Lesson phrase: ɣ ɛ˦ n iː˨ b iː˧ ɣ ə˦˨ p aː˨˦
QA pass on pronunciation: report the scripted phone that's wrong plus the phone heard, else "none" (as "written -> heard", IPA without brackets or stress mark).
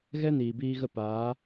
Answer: none